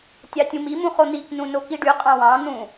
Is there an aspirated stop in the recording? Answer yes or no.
no